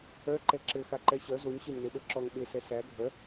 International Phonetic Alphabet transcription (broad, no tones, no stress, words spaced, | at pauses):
œ ǃɛǁɘ xaǃɛɕœ zoɲ ɕœɲneɓə˞ǁɔŋ ɓe sɛsæ ɡʱœ